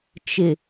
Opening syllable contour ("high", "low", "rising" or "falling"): low